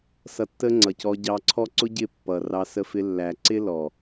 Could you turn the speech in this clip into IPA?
s ʌ˧ tː ə˦ ŋ͡ǀ ʌ˨ c ɔ˧ ɟ ɑ˧ ǀʰ ɔ˦ ǀ ʊ˦ ɟ ɪ˦˨ pː ʌ˨ r ɑ˧ s ə˧ f ɪ˧ lː æ˨ ǀ ɪ˦ l ɔ˨

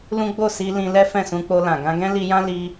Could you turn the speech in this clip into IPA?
l ũ˦ ɡ͡b o˦˨ s i˧ l ĩ˧ l ɛ˦ f ɛ̃˦˨ s ũ˧ k͡p o˧ l ã˨ ɡ ã˧ ɡ ɛ̃˦ l i˧ j ã˦ l i˦

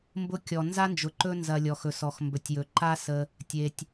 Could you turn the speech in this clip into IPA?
m b ʊ˦ kʲ ɔ˨ n z a˥ n d͡ʒ ʊ˨ ǃ ɵ˦ n z ɐ˨ lʲ ɔ˩ x ɵ˩ s ɔ˩ x m b ɵ˩ tʲ j ɵ˩ ǃ a˦ s ə˨ | tʲ e˩ tʲ

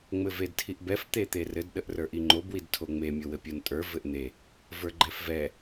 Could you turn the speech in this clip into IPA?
ŋ͡m ɘ v e d tʰ i ʔ b ɛ f t̪ e t̪ e r ɘ d ɗ ə ʔ r ə˞ ʔ i ŋ͡ǃ o b w i d tʰ o ŋ͡m e mʲ o w ɘ pʲ o n tʼ ə˞ v ɘ ʔ n̪ e | v ə˞ ɡ͡ǃ ɛ f v ɛ

